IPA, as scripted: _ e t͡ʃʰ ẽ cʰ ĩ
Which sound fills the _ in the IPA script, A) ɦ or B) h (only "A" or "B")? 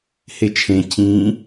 B